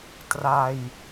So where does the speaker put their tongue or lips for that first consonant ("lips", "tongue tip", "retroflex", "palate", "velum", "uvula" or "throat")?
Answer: tongue tip